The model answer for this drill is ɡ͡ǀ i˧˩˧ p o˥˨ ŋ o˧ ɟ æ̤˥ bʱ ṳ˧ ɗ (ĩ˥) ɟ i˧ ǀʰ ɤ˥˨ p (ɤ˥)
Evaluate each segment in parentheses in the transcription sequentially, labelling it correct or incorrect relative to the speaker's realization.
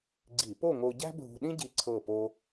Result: correct, incorrect

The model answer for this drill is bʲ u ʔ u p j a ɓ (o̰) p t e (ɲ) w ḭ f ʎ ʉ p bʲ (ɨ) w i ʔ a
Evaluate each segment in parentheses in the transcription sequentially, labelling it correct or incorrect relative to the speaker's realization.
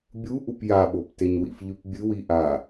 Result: incorrect, correct, correct

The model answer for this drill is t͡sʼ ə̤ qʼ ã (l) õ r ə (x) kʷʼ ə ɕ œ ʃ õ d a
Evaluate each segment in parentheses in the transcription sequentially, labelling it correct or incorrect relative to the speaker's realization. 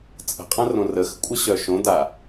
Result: incorrect, correct

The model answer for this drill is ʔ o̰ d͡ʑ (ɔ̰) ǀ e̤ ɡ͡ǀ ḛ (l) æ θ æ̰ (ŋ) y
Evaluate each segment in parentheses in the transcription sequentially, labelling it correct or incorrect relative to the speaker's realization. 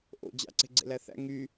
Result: incorrect, correct, correct

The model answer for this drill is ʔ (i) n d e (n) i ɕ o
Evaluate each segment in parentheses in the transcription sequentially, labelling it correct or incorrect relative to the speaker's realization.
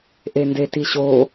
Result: incorrect, incorrect

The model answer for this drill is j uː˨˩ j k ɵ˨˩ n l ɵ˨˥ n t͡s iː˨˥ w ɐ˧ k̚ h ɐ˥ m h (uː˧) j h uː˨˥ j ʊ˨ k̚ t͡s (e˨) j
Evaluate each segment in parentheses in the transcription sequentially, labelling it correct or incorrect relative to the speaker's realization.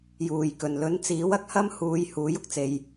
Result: correct, correct

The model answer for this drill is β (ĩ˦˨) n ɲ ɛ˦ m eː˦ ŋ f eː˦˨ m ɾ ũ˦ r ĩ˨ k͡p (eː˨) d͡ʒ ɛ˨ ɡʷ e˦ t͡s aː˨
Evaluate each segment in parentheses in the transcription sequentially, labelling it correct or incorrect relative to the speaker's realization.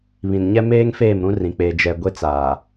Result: incorrect, correct

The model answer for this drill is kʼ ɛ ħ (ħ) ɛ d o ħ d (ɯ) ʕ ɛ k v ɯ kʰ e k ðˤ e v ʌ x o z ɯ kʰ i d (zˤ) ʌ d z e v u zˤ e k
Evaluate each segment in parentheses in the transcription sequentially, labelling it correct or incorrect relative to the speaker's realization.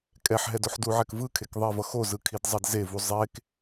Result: incorrect, incorrect, correct

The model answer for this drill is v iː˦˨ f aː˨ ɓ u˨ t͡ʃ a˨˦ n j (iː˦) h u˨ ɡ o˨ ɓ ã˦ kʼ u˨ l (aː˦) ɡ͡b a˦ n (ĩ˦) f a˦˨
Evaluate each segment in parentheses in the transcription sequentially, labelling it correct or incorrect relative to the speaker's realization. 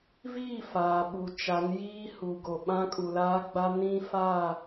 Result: correct, correct, correct

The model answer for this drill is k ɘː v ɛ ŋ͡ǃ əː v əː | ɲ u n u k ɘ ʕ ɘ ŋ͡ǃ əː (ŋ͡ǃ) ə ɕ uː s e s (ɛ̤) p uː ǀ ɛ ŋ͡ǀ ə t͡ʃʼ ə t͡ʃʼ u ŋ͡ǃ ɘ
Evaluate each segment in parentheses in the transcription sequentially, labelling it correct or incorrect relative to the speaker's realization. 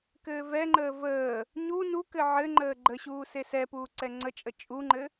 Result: incorrect, incorrect

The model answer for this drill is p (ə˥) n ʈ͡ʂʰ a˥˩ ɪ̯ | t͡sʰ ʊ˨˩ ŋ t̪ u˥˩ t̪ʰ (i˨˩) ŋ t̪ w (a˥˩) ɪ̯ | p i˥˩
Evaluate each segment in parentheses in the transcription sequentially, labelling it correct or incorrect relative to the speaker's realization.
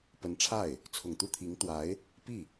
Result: incorrect, incorrect, incorrect

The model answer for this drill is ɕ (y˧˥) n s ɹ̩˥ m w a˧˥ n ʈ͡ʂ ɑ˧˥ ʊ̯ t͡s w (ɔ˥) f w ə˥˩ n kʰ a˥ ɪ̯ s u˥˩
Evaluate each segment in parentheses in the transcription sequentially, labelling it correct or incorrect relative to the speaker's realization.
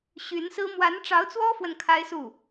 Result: correct, correct

